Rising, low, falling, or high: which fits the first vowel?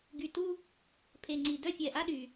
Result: low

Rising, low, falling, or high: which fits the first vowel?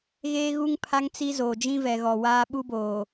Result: high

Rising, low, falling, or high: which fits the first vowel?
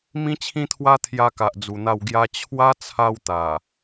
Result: high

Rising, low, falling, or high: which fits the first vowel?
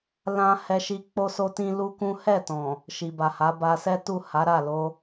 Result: high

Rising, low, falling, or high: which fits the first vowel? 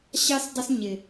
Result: high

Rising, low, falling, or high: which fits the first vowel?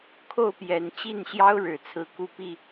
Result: falling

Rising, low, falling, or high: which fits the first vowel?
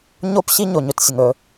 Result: high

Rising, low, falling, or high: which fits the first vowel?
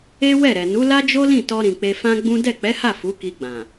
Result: high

